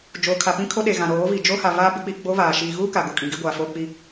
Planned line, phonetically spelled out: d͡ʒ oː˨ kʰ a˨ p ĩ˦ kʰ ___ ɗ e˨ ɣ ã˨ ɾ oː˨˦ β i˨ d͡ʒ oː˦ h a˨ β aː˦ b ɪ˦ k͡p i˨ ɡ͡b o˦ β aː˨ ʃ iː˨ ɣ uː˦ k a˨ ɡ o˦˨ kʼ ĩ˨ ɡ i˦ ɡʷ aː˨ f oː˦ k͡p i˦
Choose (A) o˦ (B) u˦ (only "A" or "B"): A